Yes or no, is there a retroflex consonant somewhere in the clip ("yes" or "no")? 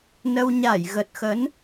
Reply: no